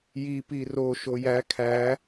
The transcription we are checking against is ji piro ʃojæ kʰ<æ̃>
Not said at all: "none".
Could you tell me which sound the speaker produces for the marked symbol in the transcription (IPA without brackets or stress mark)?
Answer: æ